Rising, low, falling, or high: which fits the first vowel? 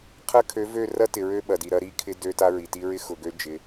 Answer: high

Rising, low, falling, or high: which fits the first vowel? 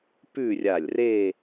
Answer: falling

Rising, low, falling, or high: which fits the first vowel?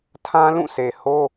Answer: high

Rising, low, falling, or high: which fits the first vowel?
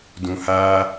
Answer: low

